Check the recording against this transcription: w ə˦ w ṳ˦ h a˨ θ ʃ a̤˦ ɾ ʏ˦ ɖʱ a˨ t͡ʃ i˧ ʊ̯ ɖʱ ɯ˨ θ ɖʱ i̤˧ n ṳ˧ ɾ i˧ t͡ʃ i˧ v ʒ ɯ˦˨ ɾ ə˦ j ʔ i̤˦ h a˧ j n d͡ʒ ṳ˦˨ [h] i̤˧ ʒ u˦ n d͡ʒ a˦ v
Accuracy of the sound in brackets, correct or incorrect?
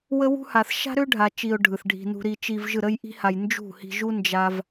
correct